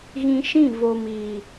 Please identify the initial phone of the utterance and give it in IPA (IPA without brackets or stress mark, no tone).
ɣ